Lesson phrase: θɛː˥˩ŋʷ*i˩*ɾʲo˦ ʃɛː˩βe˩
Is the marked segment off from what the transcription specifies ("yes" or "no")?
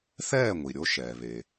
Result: no